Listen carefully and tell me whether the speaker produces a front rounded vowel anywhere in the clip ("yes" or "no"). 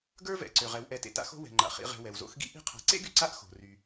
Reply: yes